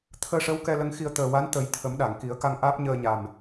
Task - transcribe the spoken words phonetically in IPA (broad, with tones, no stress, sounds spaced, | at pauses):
t̪ʰ əː˧ ʂ ə˧˥ w k ɛ˧ l ə˧ ŋ x i˧ ə̯ t̪ əː˨˩ w a˧˥ n t̪ ə˨˩˦ j t̪ʰ ə˨˩˦ m ɗ a˨˩˨ ŋ k i˨˩˦ ə̯ k a˧ ŋ ʔ aː˦˥ p̚ ɲ əː˧ ɲ a˨˩ m